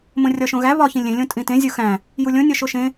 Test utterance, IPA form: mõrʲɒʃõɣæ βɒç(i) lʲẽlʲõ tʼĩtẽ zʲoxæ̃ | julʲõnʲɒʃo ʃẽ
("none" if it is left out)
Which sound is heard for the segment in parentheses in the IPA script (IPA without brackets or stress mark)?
ĩ